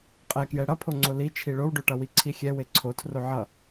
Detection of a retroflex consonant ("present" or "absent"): present